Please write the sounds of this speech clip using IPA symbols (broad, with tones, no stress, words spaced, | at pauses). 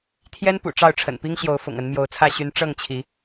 t̪ʰjɛ˦npṵ˨˩ ʈ͡ʂɑ˥˨ʊ̯ʈ͡ʂʰə̰˨˩npi˦ŋɕjo˨˦ʊ̯ fʊ̰˨˩ŋə˨˦nmjo˨˦ʊ̯t͡sʰä˥˨ ɕy˨˦n ʈ͡ʂɤ˥˨ŋt͡ɕʰi˨˦